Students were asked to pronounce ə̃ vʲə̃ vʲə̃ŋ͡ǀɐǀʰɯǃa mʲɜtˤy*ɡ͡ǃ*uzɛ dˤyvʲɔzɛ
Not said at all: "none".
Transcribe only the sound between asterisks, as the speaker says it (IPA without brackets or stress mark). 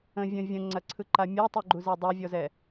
ɡ͡ǃ